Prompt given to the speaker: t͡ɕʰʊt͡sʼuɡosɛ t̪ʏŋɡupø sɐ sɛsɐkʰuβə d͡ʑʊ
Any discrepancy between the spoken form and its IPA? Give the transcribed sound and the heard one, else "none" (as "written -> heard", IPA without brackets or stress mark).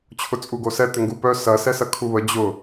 ø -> œ